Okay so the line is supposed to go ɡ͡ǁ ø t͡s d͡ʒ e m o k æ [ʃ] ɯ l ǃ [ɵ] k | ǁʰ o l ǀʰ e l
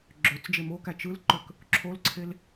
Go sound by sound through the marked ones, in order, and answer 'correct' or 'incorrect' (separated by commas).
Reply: incorrect, incorrect